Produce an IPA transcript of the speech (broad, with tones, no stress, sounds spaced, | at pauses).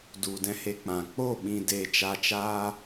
d u˨ d ɛ̃˧ h e˧ k͡p ã˨ k͡p o˦˨ ɓ ĩ˧ d e˧ t͡ʃ a˧ t͡ʃ aː˦